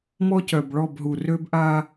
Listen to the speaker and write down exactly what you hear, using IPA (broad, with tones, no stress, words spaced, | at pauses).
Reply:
mɔ˦cœ˨bɭɔ˦˨bɦu˨ rø˦b ʔa˦